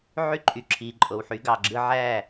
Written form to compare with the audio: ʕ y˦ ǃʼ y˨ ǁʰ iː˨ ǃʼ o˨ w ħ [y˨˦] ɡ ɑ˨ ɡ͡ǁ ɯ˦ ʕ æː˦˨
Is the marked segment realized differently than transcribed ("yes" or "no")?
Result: no